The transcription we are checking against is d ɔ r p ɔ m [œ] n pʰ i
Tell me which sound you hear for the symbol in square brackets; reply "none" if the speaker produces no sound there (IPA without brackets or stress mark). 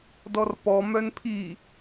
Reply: œ